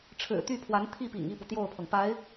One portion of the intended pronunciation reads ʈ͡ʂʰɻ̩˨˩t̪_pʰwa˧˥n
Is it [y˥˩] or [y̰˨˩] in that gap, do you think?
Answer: y˥˩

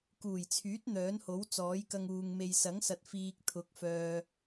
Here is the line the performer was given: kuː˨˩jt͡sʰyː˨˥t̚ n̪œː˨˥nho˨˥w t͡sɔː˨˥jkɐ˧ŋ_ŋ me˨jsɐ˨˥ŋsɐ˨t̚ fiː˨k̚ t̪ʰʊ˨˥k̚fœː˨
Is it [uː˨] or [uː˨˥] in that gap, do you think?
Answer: uː˨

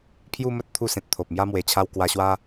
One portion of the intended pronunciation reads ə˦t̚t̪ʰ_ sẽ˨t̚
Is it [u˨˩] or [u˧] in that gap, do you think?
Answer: u˧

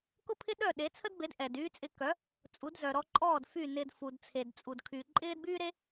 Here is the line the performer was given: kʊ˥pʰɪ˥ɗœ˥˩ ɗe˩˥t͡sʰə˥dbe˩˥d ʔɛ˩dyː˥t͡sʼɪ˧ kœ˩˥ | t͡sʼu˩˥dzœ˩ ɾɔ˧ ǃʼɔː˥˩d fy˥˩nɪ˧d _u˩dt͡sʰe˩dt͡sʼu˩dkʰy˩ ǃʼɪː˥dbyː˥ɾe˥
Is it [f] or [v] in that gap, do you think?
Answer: f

